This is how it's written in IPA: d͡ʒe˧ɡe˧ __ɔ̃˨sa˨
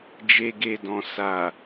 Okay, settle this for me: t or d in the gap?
d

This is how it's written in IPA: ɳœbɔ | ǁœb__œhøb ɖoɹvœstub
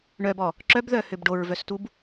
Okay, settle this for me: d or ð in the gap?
ð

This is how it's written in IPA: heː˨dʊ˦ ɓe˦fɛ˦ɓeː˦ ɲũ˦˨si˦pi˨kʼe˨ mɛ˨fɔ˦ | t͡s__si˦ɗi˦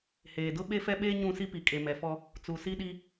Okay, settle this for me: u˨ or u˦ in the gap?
u˨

